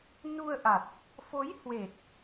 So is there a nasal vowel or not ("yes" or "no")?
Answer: no